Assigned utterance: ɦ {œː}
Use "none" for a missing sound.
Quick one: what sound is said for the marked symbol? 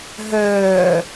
œː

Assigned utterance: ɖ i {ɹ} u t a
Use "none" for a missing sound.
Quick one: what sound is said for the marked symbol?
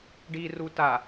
r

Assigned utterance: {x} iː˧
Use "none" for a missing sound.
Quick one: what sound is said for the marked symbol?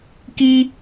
k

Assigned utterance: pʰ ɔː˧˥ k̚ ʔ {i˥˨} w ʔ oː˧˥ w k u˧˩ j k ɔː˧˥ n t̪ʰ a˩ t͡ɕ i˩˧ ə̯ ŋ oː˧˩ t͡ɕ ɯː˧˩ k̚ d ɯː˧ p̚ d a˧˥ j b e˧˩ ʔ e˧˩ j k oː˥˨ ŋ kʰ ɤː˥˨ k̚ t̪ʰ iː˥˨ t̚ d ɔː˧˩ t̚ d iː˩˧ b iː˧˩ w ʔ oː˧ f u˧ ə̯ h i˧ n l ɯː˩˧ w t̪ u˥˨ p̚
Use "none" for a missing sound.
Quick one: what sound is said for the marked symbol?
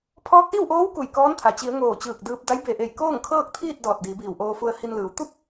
i˥˨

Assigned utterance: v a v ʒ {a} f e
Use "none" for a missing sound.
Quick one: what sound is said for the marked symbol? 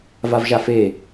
a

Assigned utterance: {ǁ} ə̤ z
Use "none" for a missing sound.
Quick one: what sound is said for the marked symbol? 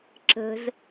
ǁ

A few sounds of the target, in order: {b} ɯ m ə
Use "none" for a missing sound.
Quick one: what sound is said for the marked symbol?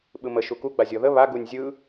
ɓ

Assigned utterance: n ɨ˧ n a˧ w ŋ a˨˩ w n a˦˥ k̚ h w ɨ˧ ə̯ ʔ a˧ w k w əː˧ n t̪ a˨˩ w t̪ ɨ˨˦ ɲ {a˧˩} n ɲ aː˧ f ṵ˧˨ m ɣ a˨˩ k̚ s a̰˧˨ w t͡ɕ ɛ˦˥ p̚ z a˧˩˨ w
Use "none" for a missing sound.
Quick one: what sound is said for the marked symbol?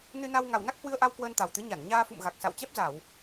a˧˩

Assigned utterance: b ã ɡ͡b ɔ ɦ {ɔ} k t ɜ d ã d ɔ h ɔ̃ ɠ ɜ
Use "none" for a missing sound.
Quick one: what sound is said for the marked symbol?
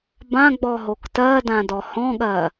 o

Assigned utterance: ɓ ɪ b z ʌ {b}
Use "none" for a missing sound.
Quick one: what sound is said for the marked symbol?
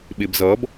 b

